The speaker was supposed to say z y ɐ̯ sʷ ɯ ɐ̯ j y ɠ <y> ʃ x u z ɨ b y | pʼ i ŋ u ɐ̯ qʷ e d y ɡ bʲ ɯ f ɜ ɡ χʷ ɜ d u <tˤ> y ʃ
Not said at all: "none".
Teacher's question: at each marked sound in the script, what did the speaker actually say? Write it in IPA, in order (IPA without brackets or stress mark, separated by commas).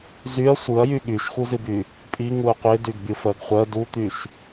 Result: y, t̪